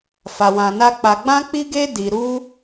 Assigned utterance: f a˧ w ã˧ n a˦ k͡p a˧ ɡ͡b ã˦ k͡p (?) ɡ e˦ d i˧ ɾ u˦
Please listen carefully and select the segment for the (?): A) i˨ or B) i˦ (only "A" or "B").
B